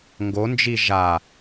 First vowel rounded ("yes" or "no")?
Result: yes